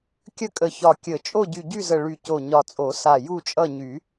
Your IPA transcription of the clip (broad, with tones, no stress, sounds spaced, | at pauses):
kʲ ə˦˨ kʼ ə˨˩ ç ɒ˨˩ kʲ ə˨˩˦ t͡ʃʼ o˦˨ ɟ y˨˩ ɟ y˦˨ z ə˨˩ ɭ y˨˩ c o˨˩ ɲ ɒ˨˩ t͡sʼ o˨˩˦ s a˨˩ j u˦˨ t͡ʃʼ ʌ˦˨ ɲ y˨˩˦